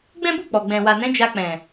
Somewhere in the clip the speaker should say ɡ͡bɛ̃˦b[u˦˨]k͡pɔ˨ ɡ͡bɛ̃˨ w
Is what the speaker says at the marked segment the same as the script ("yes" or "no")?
yes